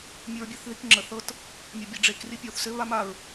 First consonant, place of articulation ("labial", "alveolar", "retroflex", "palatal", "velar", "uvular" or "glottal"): labial